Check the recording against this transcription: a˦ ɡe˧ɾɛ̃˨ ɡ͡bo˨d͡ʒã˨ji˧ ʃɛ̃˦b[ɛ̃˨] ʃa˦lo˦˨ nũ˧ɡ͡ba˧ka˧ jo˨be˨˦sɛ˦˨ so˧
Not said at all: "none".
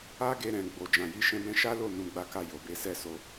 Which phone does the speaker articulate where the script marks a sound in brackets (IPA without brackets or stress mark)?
ɛ̃˦